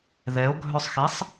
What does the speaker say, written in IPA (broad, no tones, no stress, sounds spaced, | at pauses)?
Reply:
ð ɛ o̯ ɡʱ œ sˤ x e sˤ